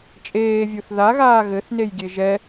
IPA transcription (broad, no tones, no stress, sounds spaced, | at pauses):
t͡ʃʼ eː vʲ u θ ð a ɣ aː ɣ ɘ θ n e j ɡʲ e ʒ ɛ